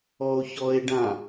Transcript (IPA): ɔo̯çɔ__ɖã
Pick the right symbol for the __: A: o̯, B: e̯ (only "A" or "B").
B